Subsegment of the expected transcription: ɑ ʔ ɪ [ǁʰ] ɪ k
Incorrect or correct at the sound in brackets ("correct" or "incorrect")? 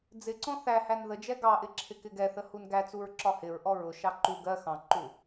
correct